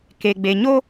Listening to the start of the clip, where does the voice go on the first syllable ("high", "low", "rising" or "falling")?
low